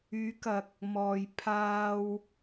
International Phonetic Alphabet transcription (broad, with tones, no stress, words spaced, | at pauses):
yː˨˧kɐ˨k̚ | mɔː˨j pʰaː˧w